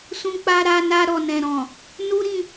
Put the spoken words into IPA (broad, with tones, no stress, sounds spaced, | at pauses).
s ũ˧ k͡p a˧ ɾ a˧ n a˧ ɾ ɔ˨ n ɛ̃˨ ɾ ɔ̃˨ | n u˦ ɾ ĩ˧